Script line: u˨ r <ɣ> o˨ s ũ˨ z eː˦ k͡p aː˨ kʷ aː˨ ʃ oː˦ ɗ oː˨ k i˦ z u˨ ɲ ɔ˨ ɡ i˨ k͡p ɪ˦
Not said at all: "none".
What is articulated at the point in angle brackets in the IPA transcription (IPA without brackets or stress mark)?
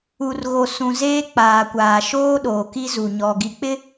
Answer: ɣ